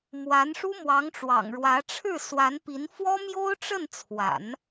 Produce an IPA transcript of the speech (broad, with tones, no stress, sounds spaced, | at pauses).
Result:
m w a˧˥ n ʂ u˥ m w ɑ˧˥ ŋ ʈ͡ʂ w ɑ̰˨˩ ŋ ɻ w ä˧˥ ʈ͡ʂʰ ɻ̩˥˩ s w a˧˥ n p i˧˥ n f w ɔ˥ m j o˥ ʊ̯ ʈ͡ʂ ə˥˩ n t͡sʰ w a̰˨˩˦ n